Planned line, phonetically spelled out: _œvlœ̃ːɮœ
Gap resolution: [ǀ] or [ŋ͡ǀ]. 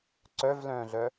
ǀ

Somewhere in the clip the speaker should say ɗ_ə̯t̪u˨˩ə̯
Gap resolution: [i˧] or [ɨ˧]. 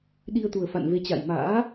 i˧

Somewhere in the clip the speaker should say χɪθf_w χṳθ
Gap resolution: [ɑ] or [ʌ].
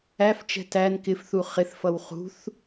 ʌ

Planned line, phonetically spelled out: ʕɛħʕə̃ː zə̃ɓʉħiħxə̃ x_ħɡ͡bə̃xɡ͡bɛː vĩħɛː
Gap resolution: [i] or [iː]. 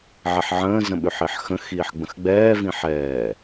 iː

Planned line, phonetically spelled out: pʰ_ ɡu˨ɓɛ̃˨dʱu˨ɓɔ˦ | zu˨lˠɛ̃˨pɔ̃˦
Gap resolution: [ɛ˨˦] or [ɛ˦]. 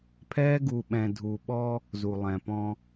ɛ˦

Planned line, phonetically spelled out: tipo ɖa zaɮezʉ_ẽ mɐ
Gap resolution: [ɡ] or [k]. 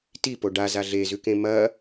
k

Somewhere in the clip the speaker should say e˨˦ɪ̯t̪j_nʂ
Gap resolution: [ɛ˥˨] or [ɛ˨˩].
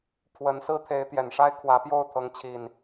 ɛ˨˩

